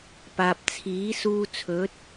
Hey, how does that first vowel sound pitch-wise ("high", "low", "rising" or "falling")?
low